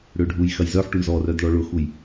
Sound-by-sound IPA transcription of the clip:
ɽ ø ɖʱ u j x ɐ j z œ ħ ʈ u ɳ z ɔ r œ d ɭ ɔ ɭ ʊ x u j

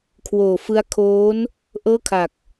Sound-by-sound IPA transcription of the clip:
kʰ w oː˨˩ f ɯ˦˥ a̯ kʰ oː˦˥ n | ʔ ɤː˥˩ kʰ a˨˩ k̚

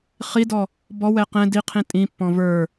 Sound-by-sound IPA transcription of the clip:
χ i d ɔ | b ɔ w ɛ q ɛ̃ d i qʰ ĩ tʼ ĩ pː ɔ̃ v ə˞

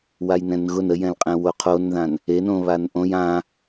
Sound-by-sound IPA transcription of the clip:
w a j n ɛ̃ n ɣ ʊ n ə j ɛ̃ l qʼ ɛ̃ w o qʰ o n ð ã n | e n õ β a n ʔ õ j ã

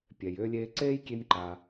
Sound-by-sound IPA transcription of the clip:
pʲ ɛ˩ j ʏː˧ lʲ eː˧ ǀ eː˥ j kʲ e˧ nʲ ǃ aː˩

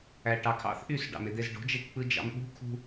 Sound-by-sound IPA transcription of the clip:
æ ʈ ɑ kʰ ɑ̰ θ ʔ y s ɖ ɑ̰ m e d̪ e z ɖ o̤ d͡ʒ e ʈ k͡p ɯ d͡ʒ ɑ̰ m ɓ ṳ kʰ ṳ

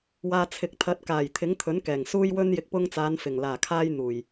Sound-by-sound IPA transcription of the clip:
w aː˨ t͡sʰ ɪ˨˥ k̚ t̪ʰ ɐ˨˥ t̚ k aː˨˩ j t̪ʰ ɪ˨˥ ŋ t̪ʰ ɵ˨˥ n k ɛː˨˩ ŋ s uː˧ j w ɵ˧ n j ɪ˨˥ k̚ p ʊ˧ ŋ t͡s aː˨˧ n f ɪ˨˩ ŋ l aː˨˩ kʰ aː˧ j n̪ uː˨˩ j

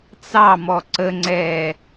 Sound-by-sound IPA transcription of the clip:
t͡s ɑ m ɔ ǀ ə ŋ͡ǀ ɛː

